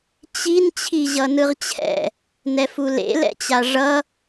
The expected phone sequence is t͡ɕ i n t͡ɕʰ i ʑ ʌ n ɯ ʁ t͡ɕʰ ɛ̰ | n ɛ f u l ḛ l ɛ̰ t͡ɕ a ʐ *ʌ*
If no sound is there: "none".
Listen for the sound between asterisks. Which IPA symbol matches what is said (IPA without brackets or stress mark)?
ʌ